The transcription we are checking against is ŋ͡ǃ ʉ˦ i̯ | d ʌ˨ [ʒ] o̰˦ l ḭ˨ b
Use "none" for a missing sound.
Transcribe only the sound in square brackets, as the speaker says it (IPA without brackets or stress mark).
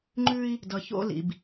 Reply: ç